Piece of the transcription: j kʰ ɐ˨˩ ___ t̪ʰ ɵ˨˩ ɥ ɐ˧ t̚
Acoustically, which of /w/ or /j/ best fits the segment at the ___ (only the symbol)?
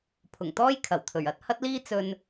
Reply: w